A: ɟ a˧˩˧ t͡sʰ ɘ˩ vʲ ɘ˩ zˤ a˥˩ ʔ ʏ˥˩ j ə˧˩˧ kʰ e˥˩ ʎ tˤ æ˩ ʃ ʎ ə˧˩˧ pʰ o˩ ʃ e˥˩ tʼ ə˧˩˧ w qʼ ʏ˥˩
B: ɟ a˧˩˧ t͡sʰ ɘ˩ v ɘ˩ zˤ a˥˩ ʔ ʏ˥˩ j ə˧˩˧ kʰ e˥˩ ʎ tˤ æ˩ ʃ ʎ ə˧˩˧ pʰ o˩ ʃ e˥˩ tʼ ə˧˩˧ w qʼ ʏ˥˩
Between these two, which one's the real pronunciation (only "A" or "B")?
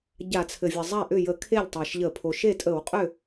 A